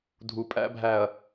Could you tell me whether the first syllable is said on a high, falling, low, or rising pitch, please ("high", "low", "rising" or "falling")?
low